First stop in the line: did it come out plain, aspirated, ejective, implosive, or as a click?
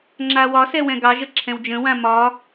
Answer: click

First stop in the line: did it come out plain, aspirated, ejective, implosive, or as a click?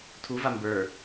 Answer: aspirated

